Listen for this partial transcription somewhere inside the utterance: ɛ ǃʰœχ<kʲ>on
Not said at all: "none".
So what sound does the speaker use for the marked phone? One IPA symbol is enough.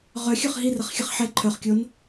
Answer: kʲ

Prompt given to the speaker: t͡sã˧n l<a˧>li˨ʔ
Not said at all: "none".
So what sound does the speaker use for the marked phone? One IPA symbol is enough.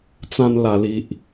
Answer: a˨˩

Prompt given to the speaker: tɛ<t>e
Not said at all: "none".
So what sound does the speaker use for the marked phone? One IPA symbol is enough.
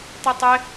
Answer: tˤ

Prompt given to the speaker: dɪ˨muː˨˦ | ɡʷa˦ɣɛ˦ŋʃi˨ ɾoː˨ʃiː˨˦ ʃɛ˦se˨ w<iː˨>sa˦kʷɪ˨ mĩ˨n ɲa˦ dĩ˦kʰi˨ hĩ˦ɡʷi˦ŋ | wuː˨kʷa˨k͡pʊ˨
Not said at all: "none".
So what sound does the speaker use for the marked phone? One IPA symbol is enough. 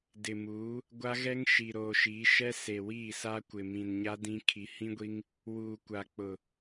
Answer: iː˦˨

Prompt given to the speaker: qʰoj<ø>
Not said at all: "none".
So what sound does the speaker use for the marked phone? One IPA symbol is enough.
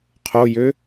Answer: ø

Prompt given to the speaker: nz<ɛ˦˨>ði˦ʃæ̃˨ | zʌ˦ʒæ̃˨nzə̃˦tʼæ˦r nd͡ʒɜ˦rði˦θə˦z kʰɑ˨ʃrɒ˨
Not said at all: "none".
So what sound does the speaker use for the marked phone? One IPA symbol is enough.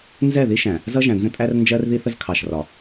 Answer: ɛ˦˨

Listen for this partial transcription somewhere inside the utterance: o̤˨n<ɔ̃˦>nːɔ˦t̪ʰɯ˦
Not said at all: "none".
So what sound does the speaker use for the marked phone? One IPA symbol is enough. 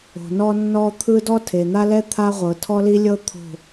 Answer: ɔ˦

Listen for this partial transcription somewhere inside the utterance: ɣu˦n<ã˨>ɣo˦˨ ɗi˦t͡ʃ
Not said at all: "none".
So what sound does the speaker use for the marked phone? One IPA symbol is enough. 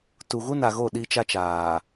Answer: a˨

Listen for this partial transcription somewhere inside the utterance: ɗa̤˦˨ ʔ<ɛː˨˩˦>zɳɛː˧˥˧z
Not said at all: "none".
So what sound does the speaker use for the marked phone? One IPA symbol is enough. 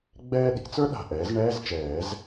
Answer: ɛː˩˥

